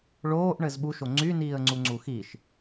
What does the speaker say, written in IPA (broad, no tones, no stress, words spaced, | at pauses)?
ɭoːʔɳɘz ɓuʃo ŋ͡ǀyniːə̯ ŋ͡ǀuŋ͡ǀuxiʃ